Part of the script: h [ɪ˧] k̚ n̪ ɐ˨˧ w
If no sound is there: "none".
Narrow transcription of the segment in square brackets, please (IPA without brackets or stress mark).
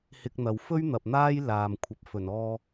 ɪ˧